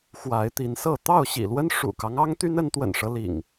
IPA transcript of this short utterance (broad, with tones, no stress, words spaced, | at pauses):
xwa˨˦ɪ̯t̪i˨˦nsɤ˥˨ t̪ɑ˥˨ʊ̯ɕḭ˨˩lwə˦n ʂṵ˨˩kɑ˦ŋ ɑ˦ŋt̪y˦n ə˨˦nt̪wə̰˨˩nʂɤ˦ lḭ˨˩ŋ